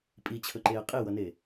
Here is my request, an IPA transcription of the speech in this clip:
pʼ i t͡ɕʰ ɵ ǃ eː qʼ i w ʌ n eː

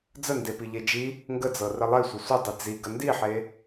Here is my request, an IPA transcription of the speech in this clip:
d͡z ə n d e p i ʎ e d͡ʒ i | ŋ ɡ ə d͡z ɤ r ə lˠ e sʷ ə sʷ ə dˤ i d͡z i ɡ ə n d i ħ e

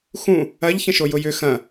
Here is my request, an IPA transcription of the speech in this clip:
x ũ | ɐ ʎ ç ə̃ ʃ o j ʊ j ʏ x ɐ̃

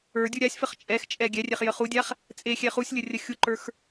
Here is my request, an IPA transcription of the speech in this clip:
ə˞ dʲ u ɾʲ a sʲ f ə χ t͡ʃʼ ɛ x t͡ʃʼ ɛ ɡʲ ɛ rʲ ɛ χ j ə χ u dʲ a χ | t͡sʼ e xʲ ɛ χ u sʲ lʲ ə rʲ ə xʲ u ǃ ə˞ x

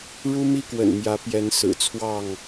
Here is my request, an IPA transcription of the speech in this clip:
ɻ u˦ m i˦ k w ə̰˨˩ n m j ä˨˦ p j ɛ˨˦ n s ɹ̩˨˩ t͡sʰ w ɑ˥˨ ŋ

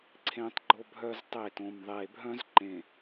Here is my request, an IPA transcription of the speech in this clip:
ǀʰ ẽ˦ tˤ ɡ͡ǃ o˦ bʱ œ˦ z tˤ e˦˨ t õ˨ m ðˤ e˨ bʱ œ̃˦ z ǃ ẽ˨

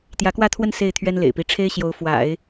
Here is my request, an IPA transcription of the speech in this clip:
t̪ j ä˧˥ k w ä˥˧ t̪ʰ w ə˥˧ n s e˥˩ ɪ̯ t̪ʰ ɥ ɛ˥ n l ḛ˨˩ ɪ̯ p i˧˥ ʈ͡ʂʰ e˥ ɪ̯ ɕ j o˧˥ ʊ̯ f w a̰˨˩˦ ɪ̯

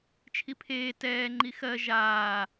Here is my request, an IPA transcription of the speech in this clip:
t͡ʃʰ i pʰ eː t ɛː ŋ͡ǃ i x ɜ ʒ aː

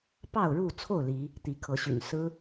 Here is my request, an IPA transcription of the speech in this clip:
p ɑ˥˨ ʊ̯ ɻ u˥˨ t͡sʰ o˥˨ ʊ̯ l i˨˦ | t̪ i˨˦ kʰ ɤ˨˦ ɕ y̰˨˩ n s ɹ̩˦

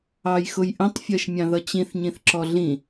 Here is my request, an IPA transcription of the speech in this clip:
ɑ j x ʊ j ʔ ə̃ tˤ fʲ ɜ ʃ mʲ ɑ̃ ð ʌ t͡ɕ ĩ θ ɲ ĩ θ ǁ ɔ ɮ ĩ

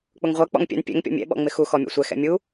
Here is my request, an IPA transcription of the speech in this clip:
k͡p ʊ ŋ ʁʷ ɜ k͡p ɔ̰ ŋ pʲ ɛ̰ n pʲ ɛ̰ ŋ pʲ ɔ̰ mʲ ɛ̰ ɓ ɔ̰ ŋ͡m ɪ x u x ɔ mʲ ɔ̰ sʷ ɛ x ɛ̰ mʲ u

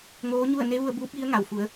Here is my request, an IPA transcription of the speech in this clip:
ŋ oː˧˥ ɲ u˥˨ ə̯ n e˧˥ ʋ u˧ ə̯ b uː˧˥ p̚ j i˧˥ ə̯ ŋ a˩ w f u˩˧ ə̯

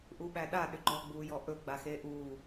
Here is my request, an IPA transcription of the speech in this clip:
ʔ u ɓ æ ɗ a ɗ ʏ ɡ͡ǃ ɔ ɡ͡b uː j ɔ ʔ ɵ ɡ͡b a x eː ʔ uː

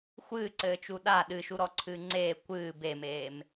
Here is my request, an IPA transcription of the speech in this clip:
xʷ ɨː ǀ ɘː t͡ʃ u ɗ a ɗ ɨ ʃ u ɾ ɔ ǀʰ ɨː ŋ͡ǀ eː kʷ ɨː b e m eː m

